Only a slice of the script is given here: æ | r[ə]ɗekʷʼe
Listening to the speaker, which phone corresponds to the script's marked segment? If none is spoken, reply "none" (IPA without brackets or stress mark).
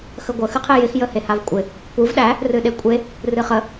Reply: ɨ